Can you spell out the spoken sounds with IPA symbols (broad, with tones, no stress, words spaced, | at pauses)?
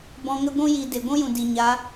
bɔ̃˧ŋə˦ ɡʷũ˦ ji˨ de˨ɡʷũ˦jũ˨ di˨ɲa˨˦